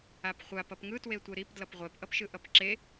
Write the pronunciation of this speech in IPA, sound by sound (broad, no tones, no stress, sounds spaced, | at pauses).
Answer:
a p χʷ a p ʌ p ŋ ɯ t w e tʷ e ɾ i p d l ʌ p ʁʷ ɛ p ʔ ʌ p ʃ ɯ ʔ ʌ p ǁ e